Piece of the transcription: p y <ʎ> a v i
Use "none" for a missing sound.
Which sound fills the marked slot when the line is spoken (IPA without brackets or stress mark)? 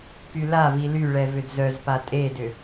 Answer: l